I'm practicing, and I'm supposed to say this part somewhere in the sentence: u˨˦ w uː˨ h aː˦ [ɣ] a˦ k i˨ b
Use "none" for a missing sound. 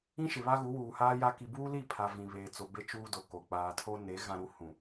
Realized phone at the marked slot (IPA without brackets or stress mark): j